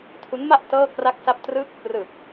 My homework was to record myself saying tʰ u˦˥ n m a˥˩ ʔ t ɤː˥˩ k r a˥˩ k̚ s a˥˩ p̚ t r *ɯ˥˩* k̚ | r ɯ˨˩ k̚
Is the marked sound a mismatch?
no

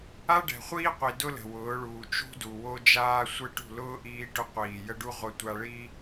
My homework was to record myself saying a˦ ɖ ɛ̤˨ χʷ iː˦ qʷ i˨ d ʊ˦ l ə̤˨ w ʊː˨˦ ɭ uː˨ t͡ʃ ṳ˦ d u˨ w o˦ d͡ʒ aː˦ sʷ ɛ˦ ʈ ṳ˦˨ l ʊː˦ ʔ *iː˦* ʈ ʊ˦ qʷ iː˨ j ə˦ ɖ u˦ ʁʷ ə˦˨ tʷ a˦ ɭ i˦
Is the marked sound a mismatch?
no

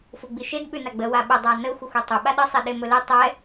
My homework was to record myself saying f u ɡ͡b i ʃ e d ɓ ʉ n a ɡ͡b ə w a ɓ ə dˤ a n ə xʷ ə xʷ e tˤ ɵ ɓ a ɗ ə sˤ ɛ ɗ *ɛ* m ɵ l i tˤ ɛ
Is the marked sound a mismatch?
yes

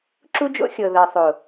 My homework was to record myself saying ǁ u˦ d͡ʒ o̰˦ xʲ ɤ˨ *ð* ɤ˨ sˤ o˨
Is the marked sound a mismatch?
no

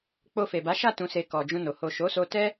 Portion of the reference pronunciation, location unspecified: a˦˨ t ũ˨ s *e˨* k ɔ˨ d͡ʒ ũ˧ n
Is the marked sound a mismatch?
no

